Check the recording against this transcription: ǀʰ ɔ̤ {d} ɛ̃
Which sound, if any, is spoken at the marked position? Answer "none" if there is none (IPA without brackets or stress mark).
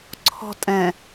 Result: tʼ